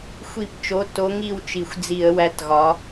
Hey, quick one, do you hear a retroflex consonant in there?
no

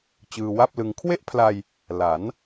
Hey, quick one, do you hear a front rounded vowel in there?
no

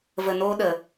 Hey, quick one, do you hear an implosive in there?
yes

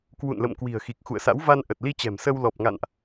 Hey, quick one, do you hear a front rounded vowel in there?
no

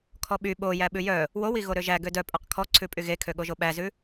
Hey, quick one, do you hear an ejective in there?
yes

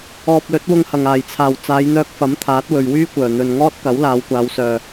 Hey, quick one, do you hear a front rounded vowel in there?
yes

